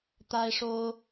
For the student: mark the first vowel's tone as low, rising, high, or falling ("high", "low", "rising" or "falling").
high